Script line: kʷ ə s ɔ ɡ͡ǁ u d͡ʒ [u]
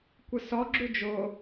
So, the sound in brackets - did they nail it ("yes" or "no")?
no